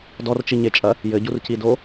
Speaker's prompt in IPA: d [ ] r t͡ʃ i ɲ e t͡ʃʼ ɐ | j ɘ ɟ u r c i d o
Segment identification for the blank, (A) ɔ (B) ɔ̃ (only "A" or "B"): A